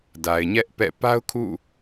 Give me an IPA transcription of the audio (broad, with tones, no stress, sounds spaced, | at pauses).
d a˨ ɪ̯ ɲ ɛ˦ ʔ p ɛ̰˦˨ p a˦ ʊ̯ kʰ ṵ˦˨